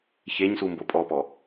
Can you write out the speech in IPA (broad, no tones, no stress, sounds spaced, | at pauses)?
ç e ɲ s u m b o pʼ ɔ p ɔ